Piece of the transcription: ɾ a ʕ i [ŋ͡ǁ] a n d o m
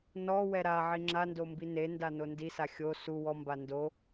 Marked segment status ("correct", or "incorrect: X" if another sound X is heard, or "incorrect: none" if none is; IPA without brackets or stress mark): correct